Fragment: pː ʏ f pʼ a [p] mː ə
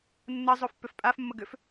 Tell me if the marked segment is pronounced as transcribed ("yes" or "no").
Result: no